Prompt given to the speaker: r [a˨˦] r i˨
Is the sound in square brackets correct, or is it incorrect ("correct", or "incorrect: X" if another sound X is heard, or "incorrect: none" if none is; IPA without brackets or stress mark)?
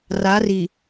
correct